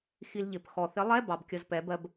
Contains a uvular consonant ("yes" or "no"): no